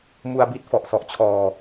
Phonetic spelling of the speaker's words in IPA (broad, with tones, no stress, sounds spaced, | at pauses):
m u˧ a̯ b i˦˥ t̚ f ɔ˨˩ ʔ s ɔ˨˩ ʔ t͡ɕʰ ɔː˧